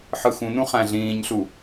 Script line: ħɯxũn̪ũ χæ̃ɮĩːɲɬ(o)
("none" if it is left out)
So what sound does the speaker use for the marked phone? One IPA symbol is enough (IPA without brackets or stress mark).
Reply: u